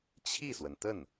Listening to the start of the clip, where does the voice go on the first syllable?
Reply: falling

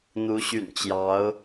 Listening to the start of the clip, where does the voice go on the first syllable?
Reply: rising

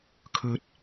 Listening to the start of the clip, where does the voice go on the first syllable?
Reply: low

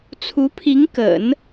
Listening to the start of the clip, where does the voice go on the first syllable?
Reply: rising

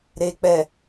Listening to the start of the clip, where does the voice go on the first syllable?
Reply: low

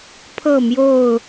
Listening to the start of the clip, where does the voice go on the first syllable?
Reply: falling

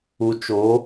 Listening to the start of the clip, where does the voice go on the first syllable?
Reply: low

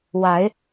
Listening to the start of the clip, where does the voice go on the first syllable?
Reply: rising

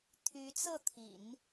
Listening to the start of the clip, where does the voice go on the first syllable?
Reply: rising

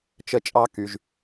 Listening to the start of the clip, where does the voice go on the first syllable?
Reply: high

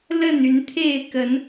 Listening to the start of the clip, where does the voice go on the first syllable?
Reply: falling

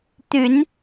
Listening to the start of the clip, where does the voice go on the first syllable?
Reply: rising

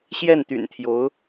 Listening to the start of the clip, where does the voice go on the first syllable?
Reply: falling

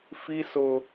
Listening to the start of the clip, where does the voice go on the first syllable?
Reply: high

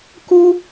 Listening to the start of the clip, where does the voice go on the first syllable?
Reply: high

